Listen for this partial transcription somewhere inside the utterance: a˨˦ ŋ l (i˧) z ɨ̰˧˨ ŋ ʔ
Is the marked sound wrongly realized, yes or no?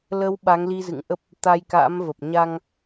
no